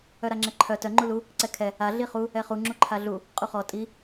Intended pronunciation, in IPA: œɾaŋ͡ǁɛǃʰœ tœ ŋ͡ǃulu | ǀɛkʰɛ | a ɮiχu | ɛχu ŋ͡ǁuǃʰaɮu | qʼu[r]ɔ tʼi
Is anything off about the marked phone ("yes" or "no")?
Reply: yes